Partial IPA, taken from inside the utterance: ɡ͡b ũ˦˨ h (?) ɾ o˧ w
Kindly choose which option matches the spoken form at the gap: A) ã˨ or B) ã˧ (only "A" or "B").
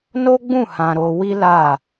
B